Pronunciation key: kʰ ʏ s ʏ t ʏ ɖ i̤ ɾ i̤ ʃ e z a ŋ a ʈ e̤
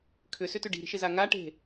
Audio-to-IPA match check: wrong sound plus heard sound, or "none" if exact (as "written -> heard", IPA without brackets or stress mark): none